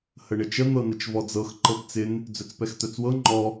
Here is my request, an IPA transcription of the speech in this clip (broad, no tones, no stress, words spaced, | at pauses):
həɳɪt͡ʃə n̪ɤnət͡ʃvɔd͡zɤx ǃɤpt͡sɪn | d͡zœt͡spɛxt̪œt͡swɤ ŋ͡ǃɔ